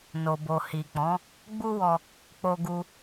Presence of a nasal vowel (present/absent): present